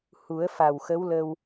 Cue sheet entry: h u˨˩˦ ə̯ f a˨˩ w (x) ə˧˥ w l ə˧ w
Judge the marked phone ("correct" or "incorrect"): correct